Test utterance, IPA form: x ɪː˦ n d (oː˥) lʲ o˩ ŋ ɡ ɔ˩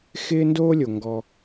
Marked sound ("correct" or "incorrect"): correct